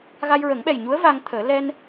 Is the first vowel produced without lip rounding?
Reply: yes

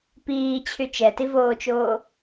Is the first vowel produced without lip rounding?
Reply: yes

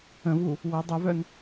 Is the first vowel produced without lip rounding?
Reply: yes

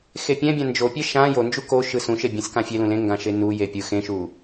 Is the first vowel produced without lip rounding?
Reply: yes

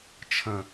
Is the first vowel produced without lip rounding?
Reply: yes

